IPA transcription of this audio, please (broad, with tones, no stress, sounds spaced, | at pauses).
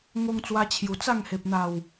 ŋ o˧ ŋ t͡s w a˧ t͡ɕʰ j u˨˩ t͡s a˥˧ ŋ h e˨ p̚ n̪ a˨˩ w